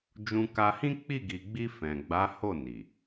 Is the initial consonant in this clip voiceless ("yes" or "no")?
no